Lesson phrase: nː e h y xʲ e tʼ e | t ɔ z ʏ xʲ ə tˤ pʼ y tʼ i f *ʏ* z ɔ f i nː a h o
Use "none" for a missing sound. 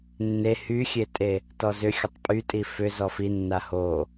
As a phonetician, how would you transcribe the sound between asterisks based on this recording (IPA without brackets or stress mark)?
ʏ